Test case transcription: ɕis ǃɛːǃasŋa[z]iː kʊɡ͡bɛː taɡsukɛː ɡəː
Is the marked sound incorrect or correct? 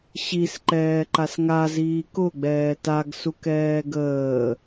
correct